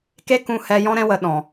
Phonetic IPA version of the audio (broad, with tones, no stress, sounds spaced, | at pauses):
k e˦ k ũ˧ h ɛ˧ j ɔ̃˦ ɾ ɛ̃˦ w ə˧ ɗ ɔ̃˨